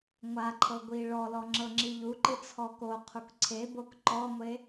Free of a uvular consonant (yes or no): no